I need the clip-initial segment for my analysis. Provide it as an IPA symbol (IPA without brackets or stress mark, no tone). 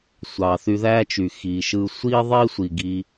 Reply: sʷ